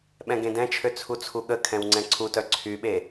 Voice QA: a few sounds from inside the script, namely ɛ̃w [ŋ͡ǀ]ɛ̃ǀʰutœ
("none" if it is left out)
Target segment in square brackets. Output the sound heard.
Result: ŋ͡ǀ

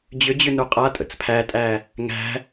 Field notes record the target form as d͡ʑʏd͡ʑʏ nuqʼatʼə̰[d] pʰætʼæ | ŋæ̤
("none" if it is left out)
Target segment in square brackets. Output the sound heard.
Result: t͡s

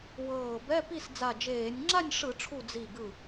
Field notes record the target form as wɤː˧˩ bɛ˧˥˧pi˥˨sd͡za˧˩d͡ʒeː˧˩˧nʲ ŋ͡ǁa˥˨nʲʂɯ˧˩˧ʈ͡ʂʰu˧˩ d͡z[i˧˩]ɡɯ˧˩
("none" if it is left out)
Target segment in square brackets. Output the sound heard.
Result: i˧˩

